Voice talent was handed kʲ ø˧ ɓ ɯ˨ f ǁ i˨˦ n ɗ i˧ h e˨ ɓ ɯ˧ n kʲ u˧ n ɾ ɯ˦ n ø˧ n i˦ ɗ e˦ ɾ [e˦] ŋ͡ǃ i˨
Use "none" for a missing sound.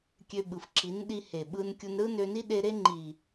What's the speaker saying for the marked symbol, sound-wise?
e˦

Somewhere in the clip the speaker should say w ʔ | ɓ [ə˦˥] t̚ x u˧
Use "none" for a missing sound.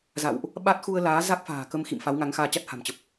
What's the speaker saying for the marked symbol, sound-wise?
a˦˥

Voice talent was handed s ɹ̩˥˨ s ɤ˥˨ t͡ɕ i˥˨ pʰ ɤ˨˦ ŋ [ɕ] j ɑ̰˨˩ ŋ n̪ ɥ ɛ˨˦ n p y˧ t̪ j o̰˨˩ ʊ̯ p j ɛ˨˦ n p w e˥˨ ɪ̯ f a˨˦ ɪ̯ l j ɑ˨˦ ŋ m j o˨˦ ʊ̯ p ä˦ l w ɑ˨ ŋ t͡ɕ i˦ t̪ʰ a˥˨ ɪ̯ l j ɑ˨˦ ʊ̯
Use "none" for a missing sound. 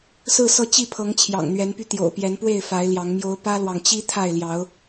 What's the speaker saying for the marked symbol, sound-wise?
t͡ɕʰ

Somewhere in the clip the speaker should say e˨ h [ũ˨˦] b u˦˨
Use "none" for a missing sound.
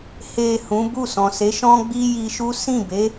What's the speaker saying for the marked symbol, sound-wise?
ũ˨˦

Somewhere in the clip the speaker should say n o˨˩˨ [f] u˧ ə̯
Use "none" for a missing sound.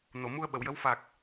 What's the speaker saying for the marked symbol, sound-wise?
m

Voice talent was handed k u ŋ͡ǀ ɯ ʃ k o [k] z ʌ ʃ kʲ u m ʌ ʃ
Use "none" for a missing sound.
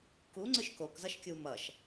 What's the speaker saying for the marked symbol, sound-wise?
k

